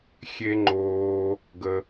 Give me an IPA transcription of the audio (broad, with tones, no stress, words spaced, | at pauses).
xʲe˧ŋ͡ǃoː˧ | ɡə˧